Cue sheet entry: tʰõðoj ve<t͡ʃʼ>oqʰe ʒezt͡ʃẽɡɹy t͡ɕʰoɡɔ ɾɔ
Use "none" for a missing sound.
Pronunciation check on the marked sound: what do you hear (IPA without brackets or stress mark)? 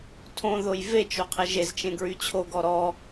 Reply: t͡ʃ